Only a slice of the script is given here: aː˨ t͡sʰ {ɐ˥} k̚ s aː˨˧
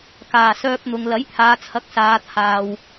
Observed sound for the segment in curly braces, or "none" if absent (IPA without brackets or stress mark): ɐ˨˥